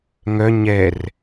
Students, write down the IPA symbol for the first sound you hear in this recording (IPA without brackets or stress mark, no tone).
ŋ